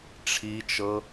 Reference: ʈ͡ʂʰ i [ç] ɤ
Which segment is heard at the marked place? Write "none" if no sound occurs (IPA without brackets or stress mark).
t͡ʃ